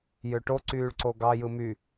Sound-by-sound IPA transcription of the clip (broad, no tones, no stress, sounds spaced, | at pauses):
j ø ʈ o ǀ yː ɭ ǀ o ɡ ɑ j ɯ m y